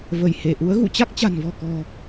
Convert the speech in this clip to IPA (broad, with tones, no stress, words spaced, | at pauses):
və˧˩jhe˧˩ʔu˨˦ə̯ ɣṵ˧˨t͡ɕa˦˥k̚t͡ɕa̤˨˩nvɔ̤˨˩ kɔ̤˨˩